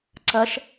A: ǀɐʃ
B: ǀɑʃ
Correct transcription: A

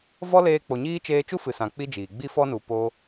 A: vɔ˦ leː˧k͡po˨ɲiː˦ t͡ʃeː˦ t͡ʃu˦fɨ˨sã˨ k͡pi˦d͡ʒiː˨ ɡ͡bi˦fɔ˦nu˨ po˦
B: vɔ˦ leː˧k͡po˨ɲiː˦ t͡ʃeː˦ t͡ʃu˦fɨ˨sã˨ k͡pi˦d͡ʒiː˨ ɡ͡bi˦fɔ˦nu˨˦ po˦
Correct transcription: A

